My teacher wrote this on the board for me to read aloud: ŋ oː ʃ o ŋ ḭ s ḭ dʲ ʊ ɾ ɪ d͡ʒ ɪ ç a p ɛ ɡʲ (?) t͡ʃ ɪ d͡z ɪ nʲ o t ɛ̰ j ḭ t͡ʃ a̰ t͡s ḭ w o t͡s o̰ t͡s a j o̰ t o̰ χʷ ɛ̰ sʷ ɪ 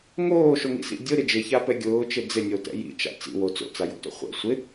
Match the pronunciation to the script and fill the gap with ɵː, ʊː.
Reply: ʊː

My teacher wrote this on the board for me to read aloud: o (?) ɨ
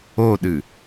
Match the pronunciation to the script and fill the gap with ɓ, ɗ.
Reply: ɗ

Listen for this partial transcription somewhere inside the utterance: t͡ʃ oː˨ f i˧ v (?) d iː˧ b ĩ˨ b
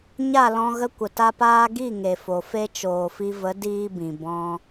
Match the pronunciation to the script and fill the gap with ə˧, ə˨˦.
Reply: ə˨˦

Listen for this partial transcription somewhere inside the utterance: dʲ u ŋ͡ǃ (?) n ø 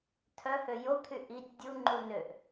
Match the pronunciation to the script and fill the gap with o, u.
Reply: u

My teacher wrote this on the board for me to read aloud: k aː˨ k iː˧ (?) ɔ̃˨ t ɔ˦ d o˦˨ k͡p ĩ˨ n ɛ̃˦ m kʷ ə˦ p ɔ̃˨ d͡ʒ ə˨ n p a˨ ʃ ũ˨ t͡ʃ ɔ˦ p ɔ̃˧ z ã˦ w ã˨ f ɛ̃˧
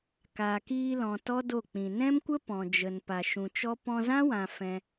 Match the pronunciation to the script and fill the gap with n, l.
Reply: l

